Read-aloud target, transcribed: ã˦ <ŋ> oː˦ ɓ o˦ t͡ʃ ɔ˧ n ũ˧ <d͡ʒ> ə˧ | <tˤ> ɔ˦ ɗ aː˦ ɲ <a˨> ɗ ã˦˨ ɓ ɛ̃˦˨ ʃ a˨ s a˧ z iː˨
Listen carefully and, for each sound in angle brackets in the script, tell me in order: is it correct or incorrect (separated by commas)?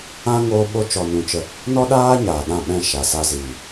correct, incorrect, incorrect, incorrect